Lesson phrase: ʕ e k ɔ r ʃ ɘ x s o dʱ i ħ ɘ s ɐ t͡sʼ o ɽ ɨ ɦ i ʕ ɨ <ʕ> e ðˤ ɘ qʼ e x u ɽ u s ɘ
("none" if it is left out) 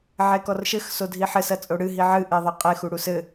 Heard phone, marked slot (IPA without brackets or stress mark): ʔ